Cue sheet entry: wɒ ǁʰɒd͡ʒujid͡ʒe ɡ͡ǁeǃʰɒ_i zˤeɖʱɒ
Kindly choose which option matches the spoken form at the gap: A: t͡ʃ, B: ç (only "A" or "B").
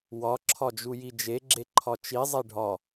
A